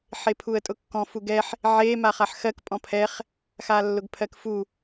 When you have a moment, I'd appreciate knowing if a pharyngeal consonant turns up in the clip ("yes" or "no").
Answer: yes